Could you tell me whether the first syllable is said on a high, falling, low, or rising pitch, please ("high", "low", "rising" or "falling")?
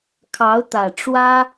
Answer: rising